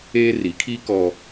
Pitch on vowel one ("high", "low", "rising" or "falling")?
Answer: high